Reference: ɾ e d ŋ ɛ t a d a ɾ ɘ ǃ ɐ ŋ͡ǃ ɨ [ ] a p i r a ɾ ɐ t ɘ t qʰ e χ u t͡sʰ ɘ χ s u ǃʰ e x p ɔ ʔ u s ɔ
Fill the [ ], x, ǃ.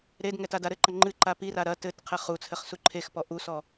ǃ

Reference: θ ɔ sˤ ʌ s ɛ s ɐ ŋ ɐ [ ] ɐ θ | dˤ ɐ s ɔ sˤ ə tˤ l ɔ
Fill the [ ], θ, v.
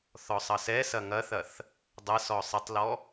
θ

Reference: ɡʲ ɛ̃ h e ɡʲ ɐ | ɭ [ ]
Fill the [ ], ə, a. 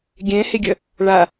a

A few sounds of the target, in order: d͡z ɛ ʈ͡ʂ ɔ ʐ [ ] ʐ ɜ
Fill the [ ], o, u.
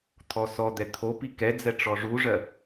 u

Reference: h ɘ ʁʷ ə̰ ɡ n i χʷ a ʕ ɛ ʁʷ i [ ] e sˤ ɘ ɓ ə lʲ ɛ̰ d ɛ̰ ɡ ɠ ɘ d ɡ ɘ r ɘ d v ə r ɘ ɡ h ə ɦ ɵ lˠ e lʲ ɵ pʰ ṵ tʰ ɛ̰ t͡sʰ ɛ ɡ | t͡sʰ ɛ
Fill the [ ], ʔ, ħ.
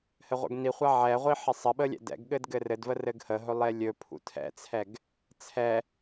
ħ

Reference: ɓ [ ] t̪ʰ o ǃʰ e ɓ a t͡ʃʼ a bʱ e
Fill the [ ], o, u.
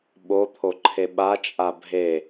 o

